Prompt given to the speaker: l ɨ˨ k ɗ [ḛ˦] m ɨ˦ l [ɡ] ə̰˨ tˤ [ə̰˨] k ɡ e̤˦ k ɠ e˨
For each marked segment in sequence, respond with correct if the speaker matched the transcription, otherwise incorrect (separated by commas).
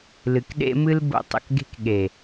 correct, incorrect, correct